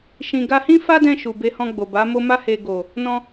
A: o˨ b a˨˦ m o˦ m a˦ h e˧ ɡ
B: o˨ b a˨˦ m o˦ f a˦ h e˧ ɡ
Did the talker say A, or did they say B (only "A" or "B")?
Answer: A